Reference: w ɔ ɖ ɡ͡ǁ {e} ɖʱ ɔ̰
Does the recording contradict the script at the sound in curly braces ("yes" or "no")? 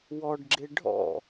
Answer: no